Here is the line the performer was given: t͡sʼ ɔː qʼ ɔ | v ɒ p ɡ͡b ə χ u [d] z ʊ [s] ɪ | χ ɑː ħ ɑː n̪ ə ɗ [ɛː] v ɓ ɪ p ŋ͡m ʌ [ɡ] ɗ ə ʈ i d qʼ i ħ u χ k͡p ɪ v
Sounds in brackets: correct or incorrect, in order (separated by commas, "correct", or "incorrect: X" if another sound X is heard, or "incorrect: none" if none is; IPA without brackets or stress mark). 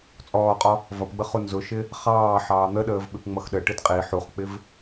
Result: incorrect: n, incorrect: ʃ, incorrect: əː, incorrect: x